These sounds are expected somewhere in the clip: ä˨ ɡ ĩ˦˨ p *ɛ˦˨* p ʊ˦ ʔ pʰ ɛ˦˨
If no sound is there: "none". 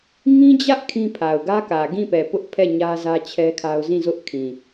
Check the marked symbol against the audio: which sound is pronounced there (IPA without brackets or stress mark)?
ɛ˨